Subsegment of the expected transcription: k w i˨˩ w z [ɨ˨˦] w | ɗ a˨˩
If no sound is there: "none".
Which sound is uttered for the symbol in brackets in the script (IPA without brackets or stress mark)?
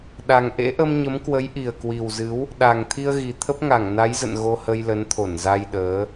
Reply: ɨ˨˦